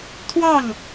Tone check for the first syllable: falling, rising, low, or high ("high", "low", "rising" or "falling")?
falling